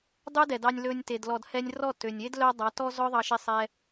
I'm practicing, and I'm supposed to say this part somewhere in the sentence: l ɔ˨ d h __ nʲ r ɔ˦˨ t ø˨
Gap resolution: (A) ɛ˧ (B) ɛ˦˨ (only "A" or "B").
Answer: A